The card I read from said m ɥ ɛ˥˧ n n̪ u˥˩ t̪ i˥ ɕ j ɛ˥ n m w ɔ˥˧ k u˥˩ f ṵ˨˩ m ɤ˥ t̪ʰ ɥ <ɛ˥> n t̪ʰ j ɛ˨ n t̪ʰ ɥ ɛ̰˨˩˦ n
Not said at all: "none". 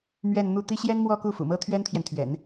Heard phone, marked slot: ɛ˥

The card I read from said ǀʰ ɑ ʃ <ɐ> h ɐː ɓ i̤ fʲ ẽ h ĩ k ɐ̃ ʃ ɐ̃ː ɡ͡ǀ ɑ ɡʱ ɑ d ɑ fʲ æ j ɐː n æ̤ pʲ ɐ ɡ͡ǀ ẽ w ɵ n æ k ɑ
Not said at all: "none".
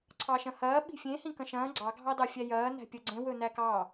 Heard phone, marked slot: ɐ̃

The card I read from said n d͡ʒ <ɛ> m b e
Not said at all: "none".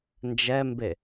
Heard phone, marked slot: ɛ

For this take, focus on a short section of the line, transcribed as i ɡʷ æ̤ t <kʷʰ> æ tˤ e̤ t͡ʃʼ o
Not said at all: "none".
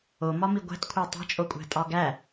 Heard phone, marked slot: kʷʰ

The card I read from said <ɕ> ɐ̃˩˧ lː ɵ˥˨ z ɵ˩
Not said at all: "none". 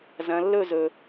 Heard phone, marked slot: z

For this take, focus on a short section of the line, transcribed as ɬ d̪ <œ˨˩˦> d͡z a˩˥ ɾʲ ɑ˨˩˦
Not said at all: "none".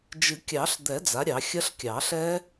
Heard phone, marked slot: ɛ˨˩˦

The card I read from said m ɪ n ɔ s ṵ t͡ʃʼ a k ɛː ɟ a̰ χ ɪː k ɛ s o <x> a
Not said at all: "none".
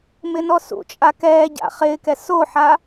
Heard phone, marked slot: ħ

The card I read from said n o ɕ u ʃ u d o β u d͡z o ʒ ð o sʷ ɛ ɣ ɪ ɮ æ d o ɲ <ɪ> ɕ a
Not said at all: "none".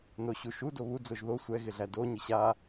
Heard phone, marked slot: ɪ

